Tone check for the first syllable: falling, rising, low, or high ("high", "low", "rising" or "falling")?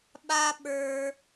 high